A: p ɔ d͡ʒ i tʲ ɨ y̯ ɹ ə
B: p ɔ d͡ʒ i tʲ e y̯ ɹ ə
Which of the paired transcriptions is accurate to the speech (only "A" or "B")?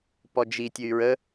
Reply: A